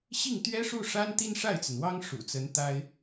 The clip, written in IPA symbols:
ɕi˥˩ŋt̪ɥɛ˥ʂu˥˩ʂa˥n t̪i˥nʂa˥˩ɪ̯t͡sə˩nwɑ˥ŋ ʂṵ˨˩t͡sə˧˥n t̪a˥ɪ̯

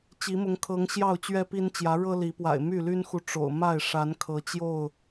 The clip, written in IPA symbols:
t͡ɕi˨˦mʊ˨˦ŋkʰɤ˨˦ŋ ɕjɑ˥˨ʊ̯t͡ɕɥɛ˦pi˦nt͡ɕjä˨˦ ɻɤ˦li˨˦pwa̰˨˩ɪ̯ my˥˨ly˦nxu˨ ʈ͡ʂo̰˨˩ʊ̯ ma˥˨ɪ̯ ʂa˨˦n kʰɤ˨˦t͡ɕjo˥˨ʊ̯

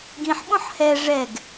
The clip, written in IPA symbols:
ɡĩħɓõħ hɛ ʐɛɡ

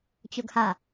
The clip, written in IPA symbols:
t͡ɕoɡha

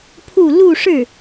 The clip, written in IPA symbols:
pʰu˥˧ lu˥˧ʂɻ̩˥˩

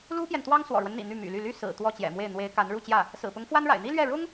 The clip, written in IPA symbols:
lu˥pjɛ˨nt̪wɑ˥ŋ swɔ̰˨˩ɻwə˦nn̪ḭ˨˩ n̪y˥˩my̰˨˩ly˥˩ ly˥ sɹ̩˨˩t̪wɔ˥˩t͡ɕjɛ̰˨˩mwe˥˩ɪ̯ n̪we˧˥ɪ̯ka˧˥n ɻu˥˧t͡ɕjä˥˩ | sɹ̩˨˩pʊ˧˥ŋfwa˥nɻa̰˨˩ɪ̯ n̪i˥lɥɛ˥˩ ɻʊ˥ŋ

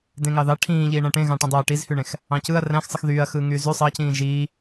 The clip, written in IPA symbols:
dẽŋɑðɑ ʈʰĩːʎiː ɳæ̃ʈẽ ɣɑ̃ʈĩdˤøɐ̯ ʈizhyɳẽx | ɑ̃cɯɐ̯ ræ̃xsˤɯx ðyːɐ̯ xɯːŋyːzy sˤɑcĩː ʒiː

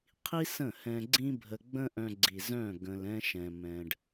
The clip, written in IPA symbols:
qʰi˦ sə̃˦˨hɛ̃˧ɡ͡ǀĩ˦ bʱə˧ ɡ͡bə̃˦ʔœ̃˧ɡ͡ǀi˨ zœ̃˦˨ ɡə̃˧lɛ̃˦ʃɛ̃˧ mɛ̃˧ɖ

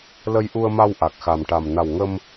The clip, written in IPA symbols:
lə˧jʔu˧ə̯ma˧w ʔa˨˩k̚xa˨˩mʈa˨˩m na˨˩wŋə˧m

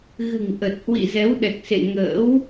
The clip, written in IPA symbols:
ɣɨ̤˨˩ŋʔə˨˩t̚hwḭ˧˨ zɛ˨˦wɗɛ˨˩k̚ sḛ˧˨ŋə̰ː˧˥w

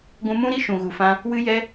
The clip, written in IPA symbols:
ɡʷũ˧mũ˦ɾi˦ ʃũ˨ɣu˨ fã˧ | wɨ˧ jɛ˧

